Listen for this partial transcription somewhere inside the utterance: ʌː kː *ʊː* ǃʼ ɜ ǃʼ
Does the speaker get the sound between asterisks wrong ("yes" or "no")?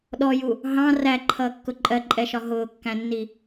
yes